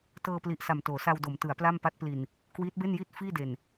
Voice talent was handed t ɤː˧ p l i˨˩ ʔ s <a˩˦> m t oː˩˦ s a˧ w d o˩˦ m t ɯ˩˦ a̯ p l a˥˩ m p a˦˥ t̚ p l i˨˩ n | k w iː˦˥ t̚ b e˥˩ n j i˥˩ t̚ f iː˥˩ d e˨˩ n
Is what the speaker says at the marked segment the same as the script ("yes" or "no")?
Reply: no